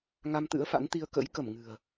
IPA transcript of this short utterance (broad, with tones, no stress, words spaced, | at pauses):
ŋa˧mt̪ɨ̰˧˥ə̯fa̰˧˥nt̪i˧ə̯ kə̰˧˥j kə˧˩m ŋɨ̤˨˩ə̯